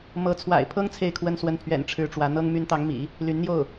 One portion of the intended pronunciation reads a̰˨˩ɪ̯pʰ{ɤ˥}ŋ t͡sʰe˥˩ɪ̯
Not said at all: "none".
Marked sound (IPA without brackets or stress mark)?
ɤ˥